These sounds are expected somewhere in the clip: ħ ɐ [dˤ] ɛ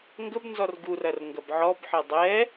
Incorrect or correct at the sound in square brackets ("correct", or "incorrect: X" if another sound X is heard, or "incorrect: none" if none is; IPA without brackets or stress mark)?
correct